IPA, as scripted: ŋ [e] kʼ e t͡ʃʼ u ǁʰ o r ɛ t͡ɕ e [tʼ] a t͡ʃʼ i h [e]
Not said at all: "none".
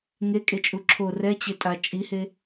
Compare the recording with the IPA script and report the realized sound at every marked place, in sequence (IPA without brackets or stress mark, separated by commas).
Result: e, tʼ, e